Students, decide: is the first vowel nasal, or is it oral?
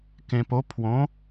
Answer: nasal